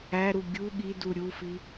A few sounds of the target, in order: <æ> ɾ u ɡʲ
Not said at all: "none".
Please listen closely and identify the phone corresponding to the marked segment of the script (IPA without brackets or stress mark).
æ